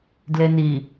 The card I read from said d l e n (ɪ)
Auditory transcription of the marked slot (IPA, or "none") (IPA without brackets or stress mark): i